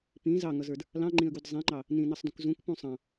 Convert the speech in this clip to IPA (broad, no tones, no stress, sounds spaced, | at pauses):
p ĩ z ɑ ŋ ʌ z ə˞ d | l ɑ̃ ŋ͡ǃ ĩ ə̯ ɡ u d zˤ ĩ ŋ͡ǃ ɑ | n ĩ n ʌ sˤ d ũ k z ũ k p ũ sˤ ɑ̃